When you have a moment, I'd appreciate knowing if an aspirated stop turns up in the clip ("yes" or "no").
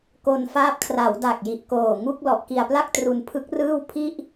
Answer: yes